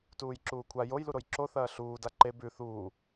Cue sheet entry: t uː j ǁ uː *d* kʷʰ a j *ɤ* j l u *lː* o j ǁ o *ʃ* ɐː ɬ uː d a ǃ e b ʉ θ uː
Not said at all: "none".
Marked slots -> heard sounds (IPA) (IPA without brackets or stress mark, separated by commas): none, o, ɾ, θ